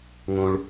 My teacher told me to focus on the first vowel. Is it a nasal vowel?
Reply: yes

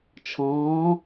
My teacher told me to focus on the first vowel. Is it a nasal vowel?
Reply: yes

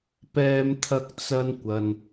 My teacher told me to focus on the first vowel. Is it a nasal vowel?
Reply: no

